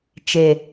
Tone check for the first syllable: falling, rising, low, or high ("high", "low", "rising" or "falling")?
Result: low